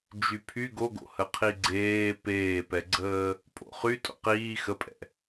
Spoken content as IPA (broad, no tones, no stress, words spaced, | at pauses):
d͡ʒypʰy ɡoɡo̰hə qʰiɡ͡ǀeː peːpɛɡ͡ǀəː | pʼo̰χy tʼo̰qiː xəpʼɛ̰